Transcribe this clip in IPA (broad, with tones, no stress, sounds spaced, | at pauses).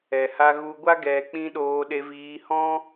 ɛ˨ h a˧ ɣ u˧ ɡʷ a˦ ɡ ɛ˧ k͡p ĩ˦ ɗ oː˧ ɗ e˧ v iː˧ h ɔ̃˦